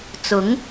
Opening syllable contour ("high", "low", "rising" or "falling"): rising